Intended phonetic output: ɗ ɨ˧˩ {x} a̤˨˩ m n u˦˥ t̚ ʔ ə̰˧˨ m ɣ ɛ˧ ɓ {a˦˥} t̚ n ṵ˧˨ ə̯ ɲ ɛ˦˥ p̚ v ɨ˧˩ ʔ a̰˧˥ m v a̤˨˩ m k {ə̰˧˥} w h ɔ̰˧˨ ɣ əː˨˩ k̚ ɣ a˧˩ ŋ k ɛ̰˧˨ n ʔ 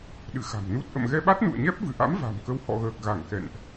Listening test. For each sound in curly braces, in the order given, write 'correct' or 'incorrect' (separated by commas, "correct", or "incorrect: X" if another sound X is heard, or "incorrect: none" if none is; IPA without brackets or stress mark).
correct, correct, incorrect: ə˧